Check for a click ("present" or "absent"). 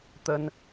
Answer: absent